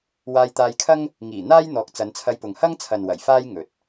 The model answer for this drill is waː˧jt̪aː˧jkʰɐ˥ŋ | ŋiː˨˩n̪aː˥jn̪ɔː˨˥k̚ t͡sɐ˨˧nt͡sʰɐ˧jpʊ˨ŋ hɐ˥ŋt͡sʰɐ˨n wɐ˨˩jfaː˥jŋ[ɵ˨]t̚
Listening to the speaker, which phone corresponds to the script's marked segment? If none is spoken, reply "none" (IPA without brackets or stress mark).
ɵ˨